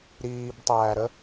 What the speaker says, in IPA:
ɾ iː b tˤ æː ɾ ə

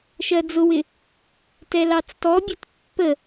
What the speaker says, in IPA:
ʃ ɜ d͡z ʊ w ɪ | t ɛ l ɑ t͡s t ɔ bʲ ɛ t pː ə

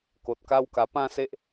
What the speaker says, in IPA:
k o˨ t̚ k a˦ w k a˧ p ã˥˧ s e˦ ʔ

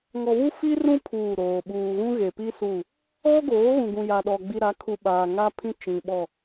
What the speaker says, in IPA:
ŋ ɔ˨ β u˦ f i˦ r ũ˦ pʰ uː˦˨ ɾ oː˨ ɓ uː˨ ɣ ũ˦ ɣ e˨ p i˦ s u˦˨ | ɔ˦ ɡ oː˨˦ ɣ ũ˨ ɡ ũ˨ j a˨ ɗ ɔ˨ ɡ͡b i˨ ɾ a˨˦ kʰ u˨ ɓ aː˨ ŋ a˦ pʰ ĩ˦ t͡ʃ ĩ˨ ɓ ɔ˦˨

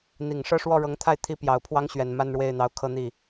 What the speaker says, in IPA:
n̪ i˨˩ ŋ ʂ ɤ˥˧ ʂ w ɔ˥˩ ɻ ɤ˧˥ ŋ t̪ʰ a˥˩ ɪ̯ t̪ʰ i˥ p j ɑ˨˩ ʊ̯ pʰ w ɑ˥ ŋ ɕ ɥ ɛ˨˩ n m a˥˧ n ɻ w e˥˩ ɪ̯ n̪ ɑ˧˥ ʊ̯ kʰ ɤ˥˧ n̪ i˥˩

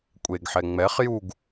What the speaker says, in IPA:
kʷʼ e ɡ ħ ɛ ŋ͡m ɛ χ j u ɡ

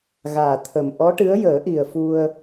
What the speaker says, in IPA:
ɣ aː˨˩ t̪ʰ ə˨˩ m ʔ ɔ˧˥ ʈ ɨ˧˥ ə̯ j əː˨˩˦ ʔ i˨˩ ə̯ f u˧ ə̯

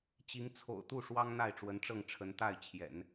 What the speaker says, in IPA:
t͡ɕ i˧˥ ŋ t͡sʰ o̰˨˩ ʊ̯ t̪ u˥˩ ʂ w ɑ˥ ŋ n̪ a˥˩ ɪ̯ ʈ͡ʂ w ə˧˥ n ʈ͡ʂ ɤ˥˩ ŋ ʈ͡ʂʰ ə˧˥ n t̪ a˥˩ ɪ̯ t͡ɕʰ j ɛ̰˨˩˦ n

